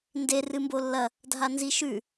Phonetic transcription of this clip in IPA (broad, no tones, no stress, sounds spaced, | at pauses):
n d e r ɨ m b o lː ɐ | dʱ a n z i ʃ ʉ